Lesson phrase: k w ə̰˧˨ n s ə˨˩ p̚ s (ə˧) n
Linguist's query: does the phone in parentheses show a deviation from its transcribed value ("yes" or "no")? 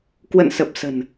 yes